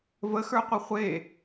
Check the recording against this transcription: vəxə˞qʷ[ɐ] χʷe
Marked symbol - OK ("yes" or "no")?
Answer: yes